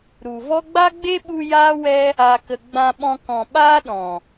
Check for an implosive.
present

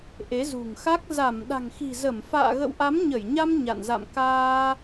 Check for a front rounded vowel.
absent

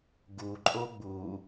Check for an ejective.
present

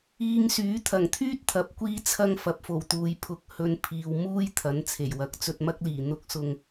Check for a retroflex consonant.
absent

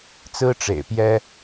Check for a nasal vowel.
absent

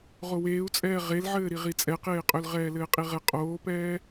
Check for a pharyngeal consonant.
present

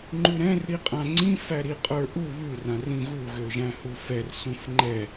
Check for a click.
present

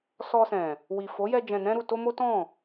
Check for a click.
absent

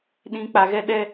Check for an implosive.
present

